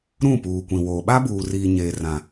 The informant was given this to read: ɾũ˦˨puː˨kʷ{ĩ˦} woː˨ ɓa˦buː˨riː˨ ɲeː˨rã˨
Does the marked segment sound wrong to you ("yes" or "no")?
yes